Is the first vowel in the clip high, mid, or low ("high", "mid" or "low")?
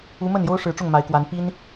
high